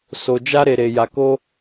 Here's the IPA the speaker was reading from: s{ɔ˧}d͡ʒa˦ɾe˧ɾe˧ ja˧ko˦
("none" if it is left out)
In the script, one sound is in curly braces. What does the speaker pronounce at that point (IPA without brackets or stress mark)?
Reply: o˧